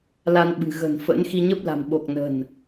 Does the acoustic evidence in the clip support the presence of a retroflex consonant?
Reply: no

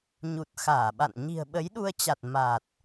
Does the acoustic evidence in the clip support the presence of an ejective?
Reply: no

